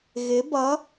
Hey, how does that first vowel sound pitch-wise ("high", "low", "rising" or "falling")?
rising